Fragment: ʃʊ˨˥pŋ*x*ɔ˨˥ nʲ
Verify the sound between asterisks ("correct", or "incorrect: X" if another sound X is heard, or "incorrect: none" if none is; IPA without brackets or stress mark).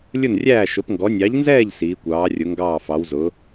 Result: incorrect: ɡ